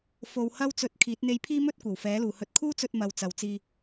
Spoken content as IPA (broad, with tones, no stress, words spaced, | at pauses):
fo˨w hɐ˥w t͡sɵ˧t̚kʰiː˨˥t̚ n̪e˧jpʰiː˥mɵ˥t̚ kʷɐ˨˩wfɛː˨˥luː˨hɵ˧t̚ kʰuː˥t͡sɵ˧t̚mɐ˨w t͡sɐ˨˧wt͡siː˧